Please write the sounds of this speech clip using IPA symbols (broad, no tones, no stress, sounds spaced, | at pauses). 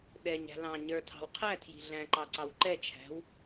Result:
ɗ ɛ ɲ æ̤ l ɑ̃ ɲ ə˞ tʰ ɑ̤ w qʰ æ tʰ j i̤ ɮ æ̃ ǃ ɑ ǀ ɑ w ǃ ɛ t͡ʃʰ æ̤ w